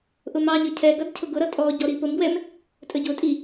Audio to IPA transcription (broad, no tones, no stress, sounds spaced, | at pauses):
ʔ ʊ m ɑ ɲ ə cʰ ɛ ɡ ʌ d cʰ ʊ ɡ ʊ ɾ ʌ tʼ ɔ ɟ ɔ ɾ i p ʊ m ɡ w ɛ m | tʼ ə ɟ ʊ tʼ i